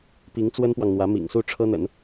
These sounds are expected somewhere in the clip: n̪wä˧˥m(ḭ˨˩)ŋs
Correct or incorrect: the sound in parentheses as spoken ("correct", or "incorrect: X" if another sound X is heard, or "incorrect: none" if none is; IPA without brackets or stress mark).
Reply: correct